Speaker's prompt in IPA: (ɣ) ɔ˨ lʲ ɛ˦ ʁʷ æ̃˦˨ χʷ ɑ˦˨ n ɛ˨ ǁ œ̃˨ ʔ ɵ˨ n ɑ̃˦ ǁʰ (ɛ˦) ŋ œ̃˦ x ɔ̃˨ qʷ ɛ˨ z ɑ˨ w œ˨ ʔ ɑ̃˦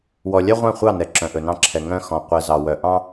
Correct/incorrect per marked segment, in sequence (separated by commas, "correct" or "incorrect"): incorrect, incorrect